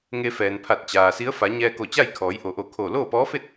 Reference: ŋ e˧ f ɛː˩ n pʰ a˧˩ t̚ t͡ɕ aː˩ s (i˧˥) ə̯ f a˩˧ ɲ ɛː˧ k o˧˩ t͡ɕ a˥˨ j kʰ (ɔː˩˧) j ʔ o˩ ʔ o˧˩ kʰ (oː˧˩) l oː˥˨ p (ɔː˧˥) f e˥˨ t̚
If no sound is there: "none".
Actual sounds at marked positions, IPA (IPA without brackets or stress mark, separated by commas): i˧˥, ɔː˩˧, oː˧˩, ɔː˧˥